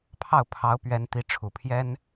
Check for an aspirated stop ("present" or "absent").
present